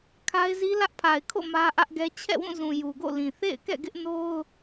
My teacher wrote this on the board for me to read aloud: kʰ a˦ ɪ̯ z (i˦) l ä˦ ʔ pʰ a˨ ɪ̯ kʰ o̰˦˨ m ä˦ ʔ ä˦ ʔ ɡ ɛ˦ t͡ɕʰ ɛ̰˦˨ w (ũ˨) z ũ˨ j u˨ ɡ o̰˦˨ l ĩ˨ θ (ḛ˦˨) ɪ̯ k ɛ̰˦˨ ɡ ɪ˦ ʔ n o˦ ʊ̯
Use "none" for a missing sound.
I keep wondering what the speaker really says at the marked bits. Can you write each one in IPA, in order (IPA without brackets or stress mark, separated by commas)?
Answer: i˦, ũ˦˨, ḛ˦˨